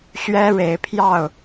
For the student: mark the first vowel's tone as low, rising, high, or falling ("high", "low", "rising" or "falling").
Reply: high